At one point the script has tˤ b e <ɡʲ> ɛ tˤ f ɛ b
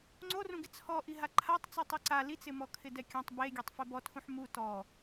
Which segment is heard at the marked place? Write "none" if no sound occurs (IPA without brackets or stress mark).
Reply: ɡʲ